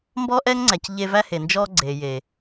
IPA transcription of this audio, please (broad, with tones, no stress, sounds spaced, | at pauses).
m b ɔ˦ ʔ ɛ˦ ŋ ŋ͡ǀ æ˨ c ʎ e˦ v æ˦ h e˨ n d͡ʒ ɔ˦ ɡ͡ǀ e˨ j e˨